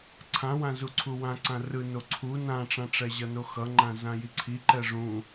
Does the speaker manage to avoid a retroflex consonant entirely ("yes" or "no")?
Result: no